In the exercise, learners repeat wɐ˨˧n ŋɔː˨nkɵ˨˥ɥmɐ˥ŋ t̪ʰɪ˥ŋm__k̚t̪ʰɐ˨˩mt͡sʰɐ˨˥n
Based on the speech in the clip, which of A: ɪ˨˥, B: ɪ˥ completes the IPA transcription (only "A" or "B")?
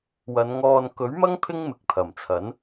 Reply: A